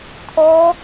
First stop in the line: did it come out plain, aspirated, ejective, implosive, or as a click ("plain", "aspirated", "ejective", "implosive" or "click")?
aspirated